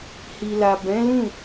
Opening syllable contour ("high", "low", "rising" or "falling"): low